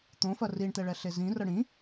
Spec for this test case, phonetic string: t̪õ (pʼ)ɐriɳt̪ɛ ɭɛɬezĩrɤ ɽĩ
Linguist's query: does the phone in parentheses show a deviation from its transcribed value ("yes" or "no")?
yes